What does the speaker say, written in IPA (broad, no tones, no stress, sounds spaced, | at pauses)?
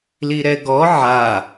l i ɾ ɛ ɡ ɔ ʕ a